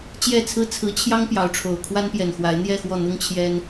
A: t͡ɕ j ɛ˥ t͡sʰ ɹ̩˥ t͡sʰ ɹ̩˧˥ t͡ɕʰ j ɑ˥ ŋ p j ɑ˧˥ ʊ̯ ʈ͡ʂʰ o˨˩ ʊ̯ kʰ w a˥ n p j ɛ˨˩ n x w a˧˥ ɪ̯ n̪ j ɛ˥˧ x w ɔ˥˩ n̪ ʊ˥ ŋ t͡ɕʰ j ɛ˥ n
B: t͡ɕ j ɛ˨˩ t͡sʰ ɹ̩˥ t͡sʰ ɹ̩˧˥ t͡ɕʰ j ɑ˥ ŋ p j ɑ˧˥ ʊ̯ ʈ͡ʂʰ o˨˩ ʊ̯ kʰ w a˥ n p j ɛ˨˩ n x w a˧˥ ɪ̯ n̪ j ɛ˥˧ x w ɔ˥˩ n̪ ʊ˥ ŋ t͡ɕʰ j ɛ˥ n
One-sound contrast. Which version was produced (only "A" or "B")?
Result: B